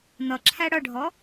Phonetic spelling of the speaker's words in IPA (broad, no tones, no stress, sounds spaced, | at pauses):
n̪ ʌ ǁʰ æ ɽ ʌ ɖʱ ɔ